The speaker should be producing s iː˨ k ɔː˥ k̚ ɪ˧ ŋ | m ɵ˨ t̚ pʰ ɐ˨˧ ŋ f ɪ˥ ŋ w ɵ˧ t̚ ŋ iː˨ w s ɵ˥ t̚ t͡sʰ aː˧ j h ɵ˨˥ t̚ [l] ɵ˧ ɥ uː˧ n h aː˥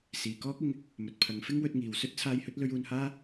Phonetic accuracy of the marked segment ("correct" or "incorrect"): correct